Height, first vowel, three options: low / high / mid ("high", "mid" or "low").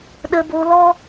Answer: mid